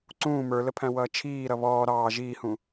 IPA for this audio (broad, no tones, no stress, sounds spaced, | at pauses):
ǀ ũː m ə˞ l ə pʰ æ̃ w ʌː t͡ʃʰ iː ɾ ʌ β ɔː ɾ ɑː ʒ iː h ũ